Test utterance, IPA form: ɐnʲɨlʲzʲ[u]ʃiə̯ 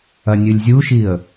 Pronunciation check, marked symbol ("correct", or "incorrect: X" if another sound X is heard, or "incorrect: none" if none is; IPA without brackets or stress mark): correct